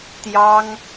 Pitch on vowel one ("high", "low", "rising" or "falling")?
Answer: high